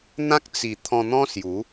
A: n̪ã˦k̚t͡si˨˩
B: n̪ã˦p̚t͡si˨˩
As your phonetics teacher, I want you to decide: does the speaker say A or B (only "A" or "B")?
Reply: A